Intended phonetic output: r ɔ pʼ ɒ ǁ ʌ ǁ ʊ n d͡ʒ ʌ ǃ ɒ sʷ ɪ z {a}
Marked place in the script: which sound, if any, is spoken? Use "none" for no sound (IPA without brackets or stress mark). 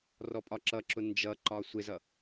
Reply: ʌ